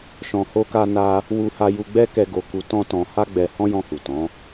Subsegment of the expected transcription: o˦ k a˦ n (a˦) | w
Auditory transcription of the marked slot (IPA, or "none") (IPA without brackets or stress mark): a˦